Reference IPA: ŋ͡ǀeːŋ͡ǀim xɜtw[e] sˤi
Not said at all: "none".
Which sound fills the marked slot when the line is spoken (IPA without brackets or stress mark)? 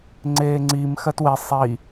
e